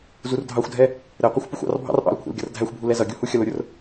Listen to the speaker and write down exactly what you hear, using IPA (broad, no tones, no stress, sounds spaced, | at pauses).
z u r dʱ ɑ xʷ dʱ ɛ | ɾ ɛ qʷ ʌ xʷ p ʊ xʷ ɑ̰ r bʱ ɑ̰ r ʔ ɑ̰ l kʷʰ ɛ̰ l ɡʲ ʌ r dʱ æ xʷ bʱ u l ɛ z ʌ ɡʲ u h u xʲ ʌ l ʊ ɾʲ ʊ r